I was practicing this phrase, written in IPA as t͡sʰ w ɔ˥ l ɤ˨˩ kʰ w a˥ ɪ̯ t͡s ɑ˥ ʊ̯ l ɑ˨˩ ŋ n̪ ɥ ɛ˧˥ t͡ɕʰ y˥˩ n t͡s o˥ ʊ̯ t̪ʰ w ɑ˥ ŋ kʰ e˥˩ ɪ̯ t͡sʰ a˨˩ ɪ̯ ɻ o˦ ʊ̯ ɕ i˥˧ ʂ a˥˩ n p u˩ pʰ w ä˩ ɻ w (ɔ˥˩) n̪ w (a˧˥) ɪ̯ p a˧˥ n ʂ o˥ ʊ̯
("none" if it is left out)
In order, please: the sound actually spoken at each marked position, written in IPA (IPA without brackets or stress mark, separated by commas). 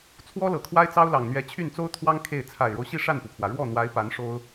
ɔ˥˩, a˧˥